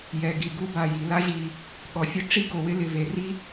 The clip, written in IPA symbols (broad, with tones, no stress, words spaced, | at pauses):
jɛ˩ɡi˩ ɡu˥ba˩ji˩ la˥ʑi˩ | ɠɔ˩fʲʊ˥ʈ͡ʂi˥ ɡo˩wɪ˥lɪ˩ ve˩ri˥